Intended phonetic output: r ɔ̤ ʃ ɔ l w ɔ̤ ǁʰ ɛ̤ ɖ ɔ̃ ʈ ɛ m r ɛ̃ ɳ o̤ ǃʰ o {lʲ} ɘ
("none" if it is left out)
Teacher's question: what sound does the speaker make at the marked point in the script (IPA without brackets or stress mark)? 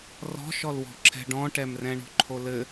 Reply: l